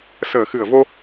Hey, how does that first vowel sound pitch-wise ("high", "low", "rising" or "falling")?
low